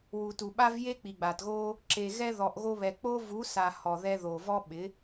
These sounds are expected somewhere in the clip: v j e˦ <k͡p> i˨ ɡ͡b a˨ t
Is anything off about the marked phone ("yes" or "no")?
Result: no